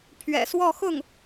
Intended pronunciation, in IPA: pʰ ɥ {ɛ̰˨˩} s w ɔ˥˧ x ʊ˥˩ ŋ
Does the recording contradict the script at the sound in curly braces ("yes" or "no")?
no